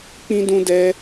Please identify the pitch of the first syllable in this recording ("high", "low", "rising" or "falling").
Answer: high